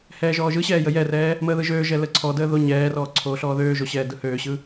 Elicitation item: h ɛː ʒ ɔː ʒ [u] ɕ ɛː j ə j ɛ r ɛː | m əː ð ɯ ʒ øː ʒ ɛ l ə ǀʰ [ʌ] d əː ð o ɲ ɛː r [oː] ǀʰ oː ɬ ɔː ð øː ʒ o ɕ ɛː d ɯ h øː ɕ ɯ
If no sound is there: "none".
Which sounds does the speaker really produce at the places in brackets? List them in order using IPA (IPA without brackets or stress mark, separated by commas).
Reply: ɯ, ɔ, ɔː